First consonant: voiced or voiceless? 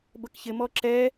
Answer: voiced